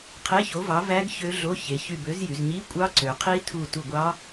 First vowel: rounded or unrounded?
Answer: unrounded